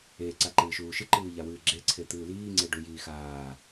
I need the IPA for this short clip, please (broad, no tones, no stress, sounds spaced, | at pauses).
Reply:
e ǀ a ǃ ɨː ʃ uː ʃ ɨ ǃ ɨː ʎ a w ɨː ɡ͡ǁ e ǀʰ e t̪ ɨː l iː ŋ͡ǀ e ɖ u j iː x aː